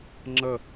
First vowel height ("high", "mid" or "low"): mid